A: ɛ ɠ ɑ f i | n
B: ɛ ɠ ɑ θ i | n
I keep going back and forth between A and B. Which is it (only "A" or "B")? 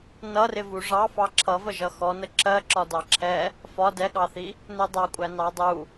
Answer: B